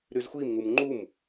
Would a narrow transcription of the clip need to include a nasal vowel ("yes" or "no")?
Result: no